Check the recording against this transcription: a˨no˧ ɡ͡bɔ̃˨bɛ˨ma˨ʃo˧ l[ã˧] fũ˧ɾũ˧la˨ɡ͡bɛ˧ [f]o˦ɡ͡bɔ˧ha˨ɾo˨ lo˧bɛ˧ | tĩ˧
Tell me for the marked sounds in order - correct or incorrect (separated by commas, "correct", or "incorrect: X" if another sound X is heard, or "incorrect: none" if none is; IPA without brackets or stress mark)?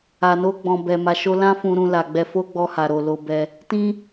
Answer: incorrect: ã˦, correct